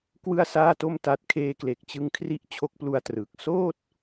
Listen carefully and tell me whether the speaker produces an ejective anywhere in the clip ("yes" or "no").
no